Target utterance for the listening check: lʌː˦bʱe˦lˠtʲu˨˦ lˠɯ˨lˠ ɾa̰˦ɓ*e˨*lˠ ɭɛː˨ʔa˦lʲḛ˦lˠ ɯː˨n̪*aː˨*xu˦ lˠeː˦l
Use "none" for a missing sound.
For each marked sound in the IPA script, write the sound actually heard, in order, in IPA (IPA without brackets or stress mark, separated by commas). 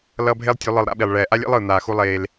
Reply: i˨, aː˨